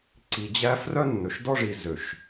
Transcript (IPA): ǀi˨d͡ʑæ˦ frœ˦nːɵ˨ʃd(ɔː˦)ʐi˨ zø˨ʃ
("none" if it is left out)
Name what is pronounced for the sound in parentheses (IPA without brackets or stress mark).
ɔ˦